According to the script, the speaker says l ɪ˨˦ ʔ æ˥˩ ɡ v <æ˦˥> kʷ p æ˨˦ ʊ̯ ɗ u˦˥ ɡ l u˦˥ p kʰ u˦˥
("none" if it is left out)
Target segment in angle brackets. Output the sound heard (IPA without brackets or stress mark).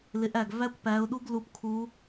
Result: æ˦˥